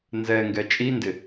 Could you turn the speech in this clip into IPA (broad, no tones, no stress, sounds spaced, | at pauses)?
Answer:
n z ɛ ŋ ɡ ɛ t͡ʃʼ i n d ɪ